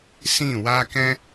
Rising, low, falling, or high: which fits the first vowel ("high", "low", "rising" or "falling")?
falling